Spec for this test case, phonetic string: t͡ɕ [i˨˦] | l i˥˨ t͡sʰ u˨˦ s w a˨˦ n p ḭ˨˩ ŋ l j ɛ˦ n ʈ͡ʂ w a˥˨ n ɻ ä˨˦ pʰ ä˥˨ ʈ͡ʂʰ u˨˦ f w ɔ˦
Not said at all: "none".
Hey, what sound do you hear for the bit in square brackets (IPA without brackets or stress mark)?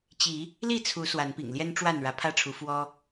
i˨˦